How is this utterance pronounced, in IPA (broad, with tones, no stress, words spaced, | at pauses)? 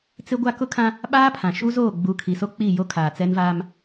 t͡sɪ˦ɡʷa˦ kʊ˦kʰã˦ | ɓaː˦pʰã˨ ʃu˦ zoː˦˨ɡ͡bu˨˦kʰi˨so˦ k͡pi˦˨ jo˦kʰaː˨t͡sɛ˦nvaː˦m